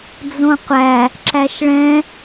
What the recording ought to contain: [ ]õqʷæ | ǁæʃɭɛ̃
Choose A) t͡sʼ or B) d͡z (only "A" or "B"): B